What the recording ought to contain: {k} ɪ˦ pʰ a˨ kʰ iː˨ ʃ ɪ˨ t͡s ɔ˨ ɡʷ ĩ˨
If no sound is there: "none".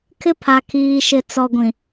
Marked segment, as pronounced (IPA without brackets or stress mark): kʰ